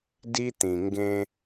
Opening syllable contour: high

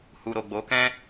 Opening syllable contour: low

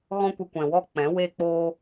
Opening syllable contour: high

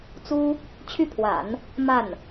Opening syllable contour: high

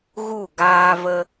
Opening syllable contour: falling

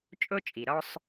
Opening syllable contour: high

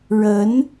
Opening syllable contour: rising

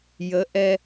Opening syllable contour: rising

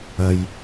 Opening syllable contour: low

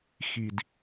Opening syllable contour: low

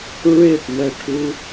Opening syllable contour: falling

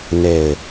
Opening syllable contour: low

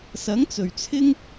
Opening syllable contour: rising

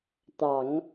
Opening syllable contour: low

